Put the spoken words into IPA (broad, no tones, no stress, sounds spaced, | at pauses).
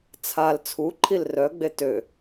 t͡sʰ a l t͡sʰ u ǃʰ i l r œ ɡ͡b e t ø